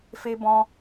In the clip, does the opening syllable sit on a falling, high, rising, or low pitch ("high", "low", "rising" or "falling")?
high